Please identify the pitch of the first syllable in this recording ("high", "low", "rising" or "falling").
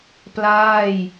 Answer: falling